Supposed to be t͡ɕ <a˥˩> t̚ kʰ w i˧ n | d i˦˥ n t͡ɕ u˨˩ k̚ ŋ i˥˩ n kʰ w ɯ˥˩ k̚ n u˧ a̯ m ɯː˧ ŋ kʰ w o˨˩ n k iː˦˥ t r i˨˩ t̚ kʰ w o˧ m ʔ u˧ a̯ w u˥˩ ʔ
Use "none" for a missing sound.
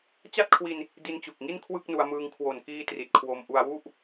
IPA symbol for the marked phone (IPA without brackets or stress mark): a˥˩